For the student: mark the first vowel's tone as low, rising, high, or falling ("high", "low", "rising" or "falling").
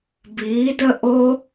rising